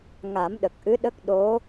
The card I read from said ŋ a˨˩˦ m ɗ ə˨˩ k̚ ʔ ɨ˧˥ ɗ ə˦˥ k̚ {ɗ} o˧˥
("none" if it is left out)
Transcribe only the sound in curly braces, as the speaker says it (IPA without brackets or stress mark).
ɗ